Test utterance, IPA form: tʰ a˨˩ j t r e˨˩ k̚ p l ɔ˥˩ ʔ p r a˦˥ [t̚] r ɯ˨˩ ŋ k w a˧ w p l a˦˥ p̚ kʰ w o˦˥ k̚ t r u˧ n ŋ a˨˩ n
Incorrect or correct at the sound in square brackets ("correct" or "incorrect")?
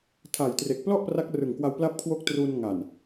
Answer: incorrect